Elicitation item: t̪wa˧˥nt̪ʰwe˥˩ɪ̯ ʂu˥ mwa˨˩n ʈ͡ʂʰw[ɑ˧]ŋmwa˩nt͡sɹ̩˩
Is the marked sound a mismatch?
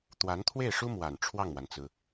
yes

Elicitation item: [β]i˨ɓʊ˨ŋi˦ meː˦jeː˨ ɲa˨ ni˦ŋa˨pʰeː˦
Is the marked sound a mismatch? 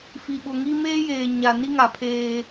yes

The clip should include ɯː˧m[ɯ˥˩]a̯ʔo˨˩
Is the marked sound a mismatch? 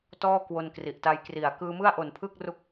no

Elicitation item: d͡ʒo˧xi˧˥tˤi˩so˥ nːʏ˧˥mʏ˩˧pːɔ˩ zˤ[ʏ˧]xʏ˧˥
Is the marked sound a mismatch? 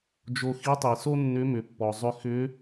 no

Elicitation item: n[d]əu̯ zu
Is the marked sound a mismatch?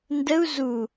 no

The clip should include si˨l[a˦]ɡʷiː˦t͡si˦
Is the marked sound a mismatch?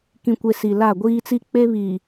yes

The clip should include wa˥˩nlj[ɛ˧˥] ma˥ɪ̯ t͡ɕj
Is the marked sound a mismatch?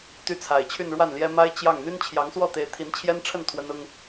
yes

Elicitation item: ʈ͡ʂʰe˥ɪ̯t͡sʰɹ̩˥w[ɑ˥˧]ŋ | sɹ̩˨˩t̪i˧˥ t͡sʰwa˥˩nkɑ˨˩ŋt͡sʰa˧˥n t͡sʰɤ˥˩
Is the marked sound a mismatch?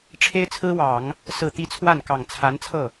yes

